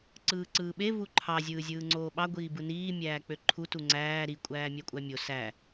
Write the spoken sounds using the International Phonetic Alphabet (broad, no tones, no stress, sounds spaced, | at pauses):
ǀ ɯː ǀ ɯː ɓ e v u ǃʰ ɑ zʲ ɯː zʲ ɯː ŋ͡ǀ oː ɓ ɑ ɡʷ iː b ɯ n iː mʲ æː k͡p ø ǃʰ u t u ŋ͡ǀ æː ɾ i kʷʼ æː mʲ æ kʷʼ æ mʲ o s æ